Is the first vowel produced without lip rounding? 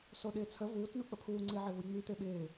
no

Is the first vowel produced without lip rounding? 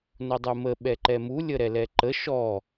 no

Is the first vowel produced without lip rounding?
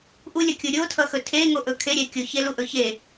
no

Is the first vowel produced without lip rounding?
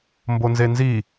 no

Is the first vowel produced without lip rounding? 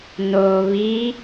no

